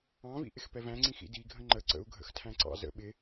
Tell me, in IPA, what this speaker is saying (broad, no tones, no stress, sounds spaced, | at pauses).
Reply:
ɑ̃ v ḭ ʔ ɪ x p ɛ v æ̃ ŋ͡ǀ ĩ x ḭ d i ɡʱ ə̃ ŋ͡ǃ ə ǀ ə̰ u̯ ɡʱ ə̰ x tʰ æ̃ ǀ ɑ̰ z ə̰ ɓ ɪ